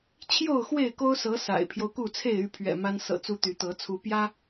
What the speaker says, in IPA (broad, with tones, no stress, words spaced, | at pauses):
t͡ɕʰjo˥˨ʊ̯xwe˥˨ɪ̯ko˦ʊ̯sɤ˨˦ sa̰˨˩ɪ̯pʰjo˦ʊ̯ku˥˨ t͡sʰe˥˨ɪ̯y˥˨pʰɥɛ̰˨˩ ma˦n sɤ̰˨˩t͡su˨˦ t̪y˨˦t̪ɤ˨˦ t͡sʰu˨˦pjä˦